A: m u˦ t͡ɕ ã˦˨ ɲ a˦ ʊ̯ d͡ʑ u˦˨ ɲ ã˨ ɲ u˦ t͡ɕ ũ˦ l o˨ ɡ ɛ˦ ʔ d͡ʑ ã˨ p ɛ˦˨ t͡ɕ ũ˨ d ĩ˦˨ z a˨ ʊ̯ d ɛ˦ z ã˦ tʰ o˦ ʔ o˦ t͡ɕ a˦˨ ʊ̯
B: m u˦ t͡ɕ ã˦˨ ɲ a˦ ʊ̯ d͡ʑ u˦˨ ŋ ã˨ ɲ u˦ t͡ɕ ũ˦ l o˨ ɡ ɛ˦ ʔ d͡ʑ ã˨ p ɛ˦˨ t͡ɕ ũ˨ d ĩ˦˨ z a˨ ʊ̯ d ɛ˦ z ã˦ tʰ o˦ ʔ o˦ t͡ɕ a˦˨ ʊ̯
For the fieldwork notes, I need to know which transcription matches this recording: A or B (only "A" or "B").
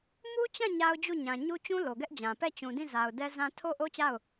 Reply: A